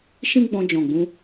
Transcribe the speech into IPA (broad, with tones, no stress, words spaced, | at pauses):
ʃĩ˦ɡ͡bɔ̃˧d͡ʒɔ̃˨ɡ͡bũ˧